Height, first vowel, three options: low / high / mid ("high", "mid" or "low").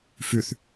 high